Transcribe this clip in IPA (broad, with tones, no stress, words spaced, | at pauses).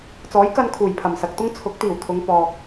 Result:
t͡sɔː˨˥jkɐ˧n kʰuː˨˩jpʰɐ˨˩msɐ˨k̚t̪ʊ˥ŋ t͡sʰʊ˨˥k̚t̪iː˨˩wt̪ʰʊ˨˧ŋ pɔː˨k̚